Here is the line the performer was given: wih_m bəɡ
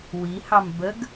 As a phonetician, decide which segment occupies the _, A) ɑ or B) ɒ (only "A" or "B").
A